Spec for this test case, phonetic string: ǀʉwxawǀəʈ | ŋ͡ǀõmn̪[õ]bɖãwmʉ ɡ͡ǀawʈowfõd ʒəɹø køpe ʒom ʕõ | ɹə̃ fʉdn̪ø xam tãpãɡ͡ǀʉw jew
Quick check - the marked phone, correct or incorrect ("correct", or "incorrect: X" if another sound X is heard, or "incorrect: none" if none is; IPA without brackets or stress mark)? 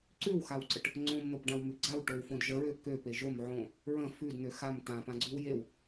incorrect: o